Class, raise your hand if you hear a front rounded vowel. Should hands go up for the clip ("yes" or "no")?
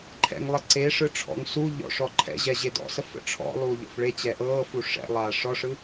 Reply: no